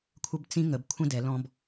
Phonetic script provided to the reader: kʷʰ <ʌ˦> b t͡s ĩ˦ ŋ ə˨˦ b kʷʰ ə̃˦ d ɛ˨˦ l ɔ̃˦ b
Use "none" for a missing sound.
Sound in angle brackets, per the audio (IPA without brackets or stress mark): ə˦